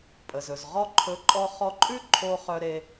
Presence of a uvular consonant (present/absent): present